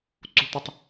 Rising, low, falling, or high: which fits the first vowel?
low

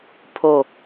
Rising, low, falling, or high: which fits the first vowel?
falling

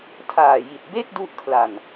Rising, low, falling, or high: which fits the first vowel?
low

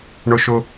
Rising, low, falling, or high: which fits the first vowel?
high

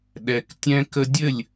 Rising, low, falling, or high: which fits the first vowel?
low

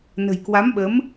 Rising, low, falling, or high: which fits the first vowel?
low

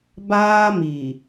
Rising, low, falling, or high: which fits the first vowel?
high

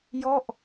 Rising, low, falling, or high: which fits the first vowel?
falling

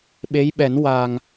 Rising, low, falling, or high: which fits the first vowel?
rising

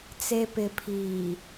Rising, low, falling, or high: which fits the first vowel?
low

